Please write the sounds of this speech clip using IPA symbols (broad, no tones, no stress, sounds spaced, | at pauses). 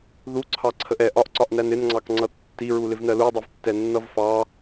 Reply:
ð u ǀʰ ɑ ǀʰ ə ʔ ɛ ʔ ɒ ʔ ǀ ɒ ʔ n æ n ɪ n ŋ͡ǀ ɑ k ŋ͡ǀ ʌ tː i ɹ u l ɪ v n ɜ l u dˤ i v tː ɛ nː ʌ v f ɑ